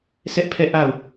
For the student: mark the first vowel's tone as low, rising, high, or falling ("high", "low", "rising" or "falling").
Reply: high